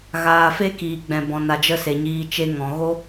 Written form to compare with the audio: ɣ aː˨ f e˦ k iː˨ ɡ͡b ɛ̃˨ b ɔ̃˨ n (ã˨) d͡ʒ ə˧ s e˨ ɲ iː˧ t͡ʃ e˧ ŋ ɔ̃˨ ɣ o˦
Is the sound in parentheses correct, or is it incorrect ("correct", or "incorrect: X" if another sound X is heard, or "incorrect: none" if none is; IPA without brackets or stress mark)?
incorrect: a˨